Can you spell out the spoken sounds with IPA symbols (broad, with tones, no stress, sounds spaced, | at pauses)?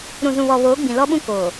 ɾ ũ˨ z ũ˨ β ɔ˨ β oː˨˦ ɡ͡b ĩ˨ l ɔ˦ ɓ ũ˦ k oː˨